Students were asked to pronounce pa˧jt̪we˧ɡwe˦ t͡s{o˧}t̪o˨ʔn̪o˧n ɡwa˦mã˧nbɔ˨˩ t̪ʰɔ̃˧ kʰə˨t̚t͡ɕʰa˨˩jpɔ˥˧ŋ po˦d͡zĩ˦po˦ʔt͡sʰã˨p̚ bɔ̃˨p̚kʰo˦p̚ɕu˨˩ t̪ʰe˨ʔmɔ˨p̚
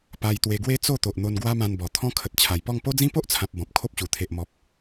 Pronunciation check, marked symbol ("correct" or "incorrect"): incorrect